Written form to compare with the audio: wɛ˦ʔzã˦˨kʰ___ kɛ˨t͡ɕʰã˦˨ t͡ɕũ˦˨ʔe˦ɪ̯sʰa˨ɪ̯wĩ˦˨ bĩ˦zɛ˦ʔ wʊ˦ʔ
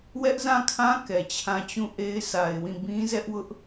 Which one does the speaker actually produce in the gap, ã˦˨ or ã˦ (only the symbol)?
ã˦